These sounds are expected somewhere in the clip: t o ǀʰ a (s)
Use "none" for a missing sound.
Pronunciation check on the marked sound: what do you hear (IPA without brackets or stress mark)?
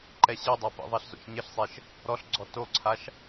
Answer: ʃ